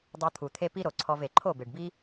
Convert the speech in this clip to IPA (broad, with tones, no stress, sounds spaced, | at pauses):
dˤ ɤ˧ t̪ʰ u˨ t̪ʰ e˦ p i˦ ɾ o˨ ǀʰ ɔ˧ v e˨ ǃʰ o˦˨ b e˨ ɖ b i˦